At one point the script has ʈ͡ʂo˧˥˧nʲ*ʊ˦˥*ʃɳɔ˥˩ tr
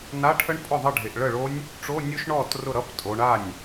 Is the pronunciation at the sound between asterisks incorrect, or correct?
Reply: correct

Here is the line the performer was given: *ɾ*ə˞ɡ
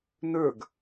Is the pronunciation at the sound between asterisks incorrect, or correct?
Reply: incorrect: n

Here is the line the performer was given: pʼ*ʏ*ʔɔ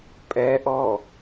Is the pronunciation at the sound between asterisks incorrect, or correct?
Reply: incorrect: ɛ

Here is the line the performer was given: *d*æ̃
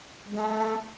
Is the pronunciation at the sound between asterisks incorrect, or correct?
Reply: correct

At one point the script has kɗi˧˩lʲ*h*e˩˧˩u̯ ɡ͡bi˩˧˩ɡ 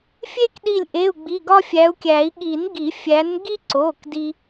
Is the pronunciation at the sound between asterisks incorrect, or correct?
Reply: incorrect: ʔ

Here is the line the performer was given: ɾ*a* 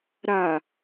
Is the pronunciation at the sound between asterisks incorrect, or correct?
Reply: correct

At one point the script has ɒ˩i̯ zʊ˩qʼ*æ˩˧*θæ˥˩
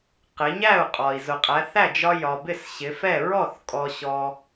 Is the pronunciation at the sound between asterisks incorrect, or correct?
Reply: correct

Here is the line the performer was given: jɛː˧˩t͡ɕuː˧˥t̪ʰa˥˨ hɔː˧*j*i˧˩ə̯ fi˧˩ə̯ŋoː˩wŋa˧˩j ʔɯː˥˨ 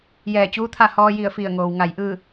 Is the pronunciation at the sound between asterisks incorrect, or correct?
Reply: correct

